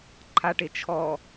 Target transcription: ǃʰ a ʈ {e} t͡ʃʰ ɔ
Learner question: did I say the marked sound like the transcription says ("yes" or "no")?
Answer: yes